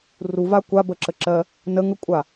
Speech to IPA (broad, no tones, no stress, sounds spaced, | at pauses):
r u v a kʷ a b ə ǁ ə ǁ ɜ | n ə ŋ ə kʷʼ a